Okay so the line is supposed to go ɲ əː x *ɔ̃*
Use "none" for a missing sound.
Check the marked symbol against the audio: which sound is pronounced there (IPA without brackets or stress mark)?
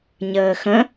ə̃